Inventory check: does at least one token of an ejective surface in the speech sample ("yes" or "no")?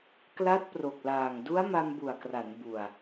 no